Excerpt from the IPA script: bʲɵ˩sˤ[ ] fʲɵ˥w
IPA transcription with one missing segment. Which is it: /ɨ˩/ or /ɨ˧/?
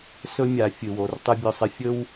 ɨ˧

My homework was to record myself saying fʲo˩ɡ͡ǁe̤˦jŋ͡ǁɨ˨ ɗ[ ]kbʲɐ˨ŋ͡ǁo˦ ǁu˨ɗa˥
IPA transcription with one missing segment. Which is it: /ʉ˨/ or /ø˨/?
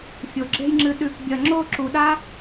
ʉ˨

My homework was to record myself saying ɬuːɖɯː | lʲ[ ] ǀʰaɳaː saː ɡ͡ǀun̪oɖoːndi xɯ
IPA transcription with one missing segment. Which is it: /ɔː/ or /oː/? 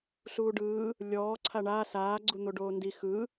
ɔː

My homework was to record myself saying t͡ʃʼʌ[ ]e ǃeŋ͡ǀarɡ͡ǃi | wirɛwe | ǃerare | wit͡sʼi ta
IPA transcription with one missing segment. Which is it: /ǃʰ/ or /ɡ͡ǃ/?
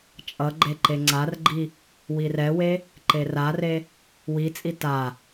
ɡ͡ǃ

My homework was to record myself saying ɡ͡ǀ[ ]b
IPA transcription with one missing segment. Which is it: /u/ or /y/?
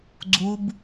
u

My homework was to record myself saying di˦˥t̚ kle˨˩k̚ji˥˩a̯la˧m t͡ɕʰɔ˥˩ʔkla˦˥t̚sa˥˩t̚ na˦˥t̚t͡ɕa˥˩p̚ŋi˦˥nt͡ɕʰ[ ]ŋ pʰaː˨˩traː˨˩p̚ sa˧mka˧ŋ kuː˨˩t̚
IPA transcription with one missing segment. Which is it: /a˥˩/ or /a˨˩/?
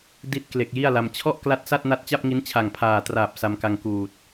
a˨˩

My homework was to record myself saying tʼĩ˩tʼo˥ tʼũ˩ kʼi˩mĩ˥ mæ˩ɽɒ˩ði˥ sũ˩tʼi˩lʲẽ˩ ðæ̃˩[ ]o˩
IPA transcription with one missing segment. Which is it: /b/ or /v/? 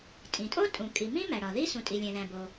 b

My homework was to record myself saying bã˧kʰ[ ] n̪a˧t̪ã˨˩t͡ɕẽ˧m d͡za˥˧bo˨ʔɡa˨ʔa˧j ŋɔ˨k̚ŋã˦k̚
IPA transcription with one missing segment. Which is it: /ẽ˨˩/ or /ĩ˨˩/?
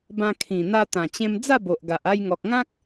ĩ˨˩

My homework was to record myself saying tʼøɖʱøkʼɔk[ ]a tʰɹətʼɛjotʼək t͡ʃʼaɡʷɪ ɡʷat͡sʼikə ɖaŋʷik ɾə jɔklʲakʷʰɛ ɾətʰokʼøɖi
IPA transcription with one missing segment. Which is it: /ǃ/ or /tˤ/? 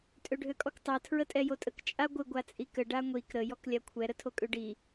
tˤ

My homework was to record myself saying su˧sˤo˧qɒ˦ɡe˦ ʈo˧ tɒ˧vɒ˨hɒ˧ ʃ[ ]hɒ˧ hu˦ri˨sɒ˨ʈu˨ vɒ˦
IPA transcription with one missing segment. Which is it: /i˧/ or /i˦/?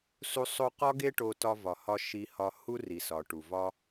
i˧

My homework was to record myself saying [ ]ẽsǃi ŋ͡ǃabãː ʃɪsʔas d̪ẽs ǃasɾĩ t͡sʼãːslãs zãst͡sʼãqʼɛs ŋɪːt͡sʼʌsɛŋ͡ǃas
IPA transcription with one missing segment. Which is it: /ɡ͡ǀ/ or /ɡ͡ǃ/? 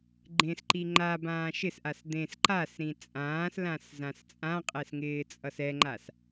ɡ͡ǃ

